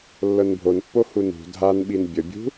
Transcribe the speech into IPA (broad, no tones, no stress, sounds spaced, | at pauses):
lː ɤ n bʱ o n pː o h u n ṳ dʱ a n ɓ i n bʲ ə bʲ ṳ